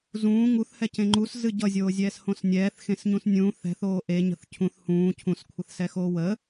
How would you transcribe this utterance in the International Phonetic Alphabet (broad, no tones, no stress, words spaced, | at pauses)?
zũː ŋuθhɛcẽ ŋ͡ǃuszɨ ɟʌzʲoːzʲɛːshõs nʲɛːθxẽsɲũs nʲũ θɛ̤θoː ʔeɲə̤θ cʰũθ hũː cʰũskʷʰʌθsɛxoː wə